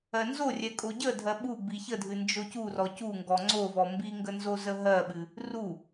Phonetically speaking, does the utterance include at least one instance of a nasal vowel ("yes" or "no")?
no